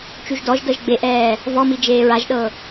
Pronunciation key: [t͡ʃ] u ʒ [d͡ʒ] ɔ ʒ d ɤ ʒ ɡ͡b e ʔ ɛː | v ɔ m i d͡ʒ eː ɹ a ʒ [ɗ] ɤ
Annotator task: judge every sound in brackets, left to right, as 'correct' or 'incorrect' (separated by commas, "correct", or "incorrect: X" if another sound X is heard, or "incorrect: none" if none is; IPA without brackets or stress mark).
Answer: correct, incorrect: d, correct